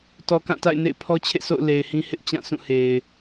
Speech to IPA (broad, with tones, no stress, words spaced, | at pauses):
tɔ˨kã˦˨ta̰˦˨ɪ̯ nḛ˦˨ɪ̯pʰɔ˦t͡ɕʰḛ˦˨sʰo̰˦˨ʊ̯ le˨ɪ̯hĩ˦hɪ˦ʔ t͡ɕã˦˨sũ˦˨he˨ɪ̯